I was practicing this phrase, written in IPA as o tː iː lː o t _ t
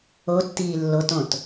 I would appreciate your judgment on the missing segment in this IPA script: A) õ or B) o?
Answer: A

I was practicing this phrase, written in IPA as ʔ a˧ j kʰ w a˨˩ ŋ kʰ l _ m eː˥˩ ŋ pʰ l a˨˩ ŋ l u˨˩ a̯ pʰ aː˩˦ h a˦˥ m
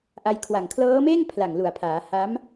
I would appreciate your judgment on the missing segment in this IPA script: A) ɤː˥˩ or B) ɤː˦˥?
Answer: B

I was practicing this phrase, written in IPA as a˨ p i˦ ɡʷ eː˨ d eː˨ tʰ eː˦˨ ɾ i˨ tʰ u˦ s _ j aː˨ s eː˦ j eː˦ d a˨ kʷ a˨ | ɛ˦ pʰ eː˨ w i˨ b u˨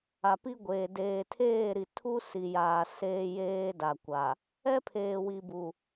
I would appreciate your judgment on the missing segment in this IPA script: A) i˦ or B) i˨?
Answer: B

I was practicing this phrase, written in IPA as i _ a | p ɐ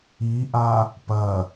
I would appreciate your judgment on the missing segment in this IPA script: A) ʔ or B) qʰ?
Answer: A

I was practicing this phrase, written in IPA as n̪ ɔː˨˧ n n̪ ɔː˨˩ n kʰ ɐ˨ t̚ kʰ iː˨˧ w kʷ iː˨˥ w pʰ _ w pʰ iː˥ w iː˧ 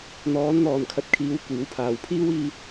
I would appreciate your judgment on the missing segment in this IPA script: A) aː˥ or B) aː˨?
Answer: B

